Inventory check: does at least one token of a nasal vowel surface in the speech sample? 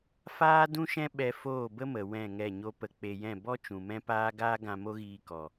yes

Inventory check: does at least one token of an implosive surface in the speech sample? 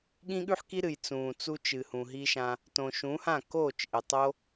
yes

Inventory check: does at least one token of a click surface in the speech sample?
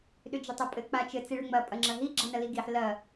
yes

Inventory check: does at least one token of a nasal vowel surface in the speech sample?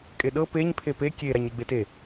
no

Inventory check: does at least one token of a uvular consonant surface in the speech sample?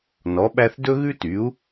no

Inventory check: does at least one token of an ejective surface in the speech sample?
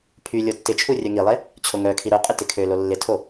yes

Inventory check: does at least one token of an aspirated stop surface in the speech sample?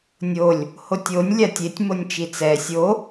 no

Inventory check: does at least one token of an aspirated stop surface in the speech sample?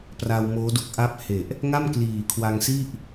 yes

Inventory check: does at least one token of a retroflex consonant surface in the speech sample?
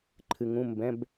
no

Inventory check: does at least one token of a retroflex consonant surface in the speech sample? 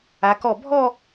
no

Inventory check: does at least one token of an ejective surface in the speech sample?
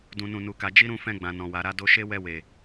no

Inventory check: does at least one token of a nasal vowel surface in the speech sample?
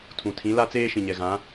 yes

